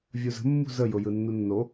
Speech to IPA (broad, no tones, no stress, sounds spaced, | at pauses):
vʲ u z ə̤ mː ṳ z ə j ʊ j ɯ nː u nː o